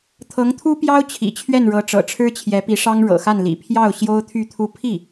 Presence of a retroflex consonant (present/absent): present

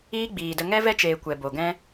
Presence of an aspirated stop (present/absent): absent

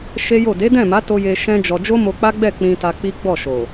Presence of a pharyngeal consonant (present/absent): absent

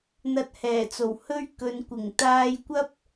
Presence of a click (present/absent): absent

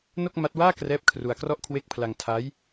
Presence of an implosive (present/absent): absent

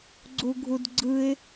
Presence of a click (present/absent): present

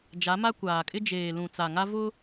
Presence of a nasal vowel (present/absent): present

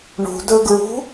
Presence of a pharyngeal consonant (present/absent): absent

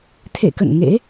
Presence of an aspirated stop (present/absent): present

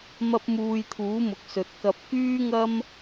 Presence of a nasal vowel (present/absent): absent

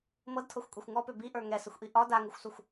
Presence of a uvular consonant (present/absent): absent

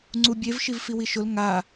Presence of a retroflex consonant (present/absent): absent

